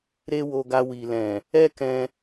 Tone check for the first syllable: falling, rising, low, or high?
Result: high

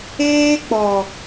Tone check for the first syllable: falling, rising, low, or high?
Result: high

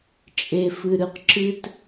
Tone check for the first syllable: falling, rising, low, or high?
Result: low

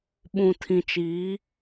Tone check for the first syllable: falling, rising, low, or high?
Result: low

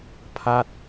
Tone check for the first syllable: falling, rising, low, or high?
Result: falling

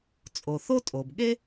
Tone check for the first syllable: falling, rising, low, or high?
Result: low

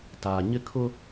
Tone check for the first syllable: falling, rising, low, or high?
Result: low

